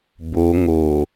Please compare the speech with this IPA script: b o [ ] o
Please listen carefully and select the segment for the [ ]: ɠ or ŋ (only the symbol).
ŋ